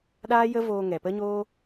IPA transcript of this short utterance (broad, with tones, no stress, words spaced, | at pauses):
ɗaː˦jə˦voː˧ ŋɛ˨pə˦ɲoː˦